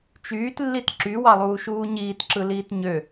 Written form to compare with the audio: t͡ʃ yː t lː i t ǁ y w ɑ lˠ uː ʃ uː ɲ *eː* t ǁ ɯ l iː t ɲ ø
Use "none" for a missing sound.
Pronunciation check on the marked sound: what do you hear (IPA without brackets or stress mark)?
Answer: iː